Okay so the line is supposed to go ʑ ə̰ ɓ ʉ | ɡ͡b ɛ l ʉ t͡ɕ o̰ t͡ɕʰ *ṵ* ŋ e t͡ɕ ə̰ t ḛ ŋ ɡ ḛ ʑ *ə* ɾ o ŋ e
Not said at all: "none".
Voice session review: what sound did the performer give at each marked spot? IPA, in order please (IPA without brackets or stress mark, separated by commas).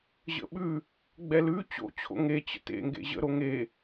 o̰, ə̰